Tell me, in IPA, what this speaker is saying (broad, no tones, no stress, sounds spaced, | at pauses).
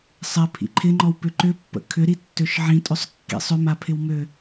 sˤ ɪ pʰ ḭ ǃʰ ɪ ŋ͡ǃ ɔ w p ʏ ǃ ʏ pː ə̰ kʰ ʏ ɾ i tː ø ʃ ʕ ĩ tʼ ʏ sˤ kː ḭ sˤ ʏ m a pʰ ɪ w m ø